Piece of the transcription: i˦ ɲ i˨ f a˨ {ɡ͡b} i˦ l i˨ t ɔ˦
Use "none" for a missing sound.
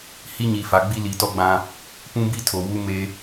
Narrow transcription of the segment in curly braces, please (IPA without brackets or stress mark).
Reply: ɡ͡b